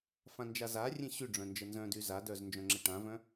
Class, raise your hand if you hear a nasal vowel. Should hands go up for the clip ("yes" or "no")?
yes